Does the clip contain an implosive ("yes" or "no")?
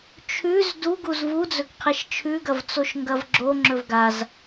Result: no